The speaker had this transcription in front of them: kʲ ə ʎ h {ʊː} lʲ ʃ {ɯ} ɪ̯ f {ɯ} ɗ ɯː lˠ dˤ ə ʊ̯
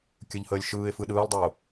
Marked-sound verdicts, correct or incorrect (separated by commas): incorrect, incorrect, correct